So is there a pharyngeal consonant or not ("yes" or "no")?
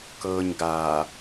no